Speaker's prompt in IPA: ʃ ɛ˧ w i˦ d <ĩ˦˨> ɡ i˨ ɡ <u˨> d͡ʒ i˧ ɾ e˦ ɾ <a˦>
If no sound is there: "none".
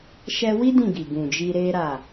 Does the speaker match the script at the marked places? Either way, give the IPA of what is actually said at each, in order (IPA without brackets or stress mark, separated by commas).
ĩ˦˨, ũ˨, a˦˨